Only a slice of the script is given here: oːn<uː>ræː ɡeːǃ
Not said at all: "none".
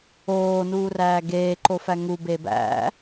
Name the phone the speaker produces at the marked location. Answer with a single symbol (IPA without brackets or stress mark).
uː